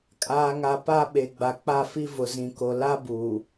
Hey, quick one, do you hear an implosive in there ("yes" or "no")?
yes